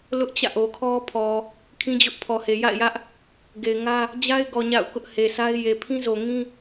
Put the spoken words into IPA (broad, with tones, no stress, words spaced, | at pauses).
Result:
lʊ˦ʔt͡ɕä̰˦˨ ʔo˨kʰɔ˦pʰɔ˨ | kʰĩ˦d͡ʑʊ˦ʔpʰɔ˨he˨ ja̰˦˨ɪ̯jä˦ʔ | ɡe˨ɪ̯ŋä˦ | d͡ʑa˦ɪ̯ɡɔ˨ ɲa̰˦˨ʊ̯ kʊ˦ʔhe˨ sʰa˦ɪ̯ je˨pʰĩ˦zo˨ŋĩ˦